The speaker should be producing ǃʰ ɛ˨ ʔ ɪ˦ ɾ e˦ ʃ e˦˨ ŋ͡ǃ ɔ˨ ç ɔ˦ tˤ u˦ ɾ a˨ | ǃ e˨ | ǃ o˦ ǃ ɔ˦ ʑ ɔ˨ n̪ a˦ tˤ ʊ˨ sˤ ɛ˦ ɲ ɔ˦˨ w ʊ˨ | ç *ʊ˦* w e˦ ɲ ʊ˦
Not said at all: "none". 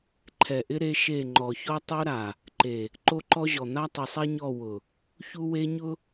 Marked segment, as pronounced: u˦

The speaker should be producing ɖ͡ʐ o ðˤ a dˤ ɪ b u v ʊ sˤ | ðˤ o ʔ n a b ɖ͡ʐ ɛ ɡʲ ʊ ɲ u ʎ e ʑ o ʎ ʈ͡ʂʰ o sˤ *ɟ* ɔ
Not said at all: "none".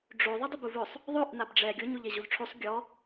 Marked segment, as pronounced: ɡʲ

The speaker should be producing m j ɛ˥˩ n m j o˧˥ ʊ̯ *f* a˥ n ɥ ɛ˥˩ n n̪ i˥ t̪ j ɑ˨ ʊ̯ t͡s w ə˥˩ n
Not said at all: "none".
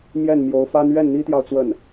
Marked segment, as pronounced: f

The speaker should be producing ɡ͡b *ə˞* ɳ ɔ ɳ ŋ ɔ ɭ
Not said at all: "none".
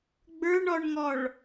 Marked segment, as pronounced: ə˞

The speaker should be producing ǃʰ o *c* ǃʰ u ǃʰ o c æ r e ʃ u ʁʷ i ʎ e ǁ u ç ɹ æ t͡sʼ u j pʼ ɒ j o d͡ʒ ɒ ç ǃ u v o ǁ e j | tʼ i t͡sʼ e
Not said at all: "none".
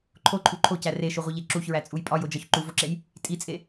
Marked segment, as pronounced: none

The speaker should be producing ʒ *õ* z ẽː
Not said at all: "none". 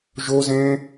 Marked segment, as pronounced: o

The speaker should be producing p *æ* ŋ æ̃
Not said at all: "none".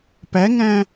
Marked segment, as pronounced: æ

